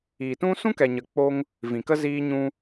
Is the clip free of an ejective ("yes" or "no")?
yes